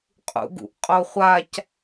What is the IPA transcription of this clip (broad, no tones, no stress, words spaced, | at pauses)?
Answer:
qʼṵɡṵʔqʼoχʷac